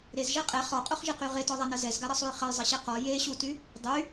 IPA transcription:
ɾezʒɛ qʼɛ χɔqʼoχʒeqy ʁetɔðˤanɐ zɛzɡaɾɐsˤuj χɐjzˤɐɕe qɔ jeɕuty | dˤy

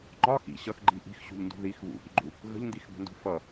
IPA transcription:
ŋ͡ǃɒ xḭ ɕʌxɡ͡ǃi ʔi̤xɕṳʎndṳ ðix βṵʔḭɡ͡ǃu | ɣə̤ʎndixbə̤ndṳ fʌ

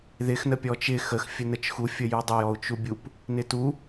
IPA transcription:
ðɪx nəpʲɔt͡ʃɪ xəx fʲənət͡ʃxu fʲəjudˤəj ɔu̯t͡ʃubʲup | nɪtu

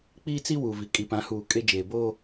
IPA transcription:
k͡piː˦t͡si˦wu˨vi˨ kʼi˨pã˨˦huː˨kʼe˦ d͡ʒeː˨boː˦

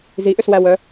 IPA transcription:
ziʔʏswæwœ

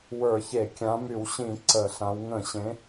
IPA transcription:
wə˞˧˩˧çe˧˩˧kʲã˨˦ my˧˩˧wɕĩ˧˩˧ ǀə˧˩˧ɬã˨˦w ŋə̃˧˩˧ɕẽ˨˦

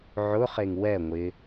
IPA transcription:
ʕʊχeŋ wɛ ŋʷɪ

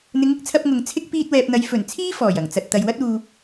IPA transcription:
n̪ɪ˨˧ŋɪ˧k̚t͡sʰɐ˧p̚ ŋʊ˨ŋ t͡sʰɪ˥k̚ piː˧t̚wɛː˨p̚n̪ɐ˨˧j fɵ˨˩n t͡sʰiː˥ fɔː˨˩jɐ˨˩ŋt͡sɐ˨t̚ t̪ɐ˨jwɐ˥t̚uː˧

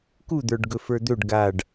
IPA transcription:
kud̪ə˞ɖɡɵ fə˞d̪ɵɖ ɡaɖ

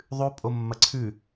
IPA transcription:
ðˤʉ pʼomːɐǀʰʉ

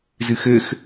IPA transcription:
zɨxɘx

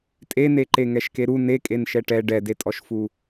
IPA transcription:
tʼeneǃe ŋɛʃkeɾu nekʼen ʃɛʈɛ ɖɛdetʼɔʃfu

